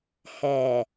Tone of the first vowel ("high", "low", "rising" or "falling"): low